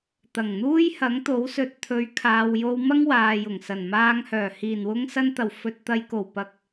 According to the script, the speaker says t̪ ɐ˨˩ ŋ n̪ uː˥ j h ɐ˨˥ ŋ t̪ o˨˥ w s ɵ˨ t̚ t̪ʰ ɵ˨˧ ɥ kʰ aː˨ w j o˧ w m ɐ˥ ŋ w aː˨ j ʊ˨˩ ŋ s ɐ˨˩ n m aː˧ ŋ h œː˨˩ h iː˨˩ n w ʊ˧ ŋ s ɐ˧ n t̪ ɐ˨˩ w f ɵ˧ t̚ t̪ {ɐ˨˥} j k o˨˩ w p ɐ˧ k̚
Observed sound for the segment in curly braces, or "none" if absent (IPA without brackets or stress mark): ɐ˨